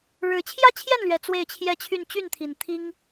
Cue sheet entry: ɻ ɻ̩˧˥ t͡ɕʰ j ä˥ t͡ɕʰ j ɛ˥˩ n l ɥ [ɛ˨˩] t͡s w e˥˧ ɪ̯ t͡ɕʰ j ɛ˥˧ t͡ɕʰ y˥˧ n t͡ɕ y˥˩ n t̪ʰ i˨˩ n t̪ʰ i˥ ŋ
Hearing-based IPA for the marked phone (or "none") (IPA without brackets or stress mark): ɛ˨˩